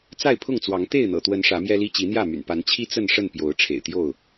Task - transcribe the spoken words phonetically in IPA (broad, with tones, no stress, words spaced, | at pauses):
t͡sa˥˨ɪ̯pʰʊ˥˨ŋt͡swɑ˨˦ŋ t̪e˥˨ɪ̯n̪ɤ̰˨˩t̪wə˨˦n ʂä˨˦mjɛ˦li˦ t͡ɕi˨˦n̪jä˥˨my̰˨˩n pa˨˦nt͡ɕʰi˦ t͡sə˥˨nʂə˥˨npjo˨˦ʊ̯ ʈ͡ʂʰḛ˨˩ɪ̯t̪jo˥˨ʊ̯